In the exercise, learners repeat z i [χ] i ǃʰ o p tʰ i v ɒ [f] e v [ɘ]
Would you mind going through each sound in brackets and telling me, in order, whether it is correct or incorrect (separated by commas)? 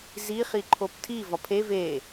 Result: correct, incorrect, incorrect